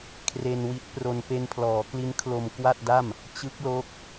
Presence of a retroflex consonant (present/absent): absent